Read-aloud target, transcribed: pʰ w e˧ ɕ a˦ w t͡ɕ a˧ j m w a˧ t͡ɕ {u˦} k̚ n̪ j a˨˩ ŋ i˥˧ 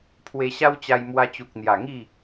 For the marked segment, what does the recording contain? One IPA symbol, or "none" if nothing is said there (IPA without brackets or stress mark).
u˨